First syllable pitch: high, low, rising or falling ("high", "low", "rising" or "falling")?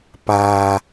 low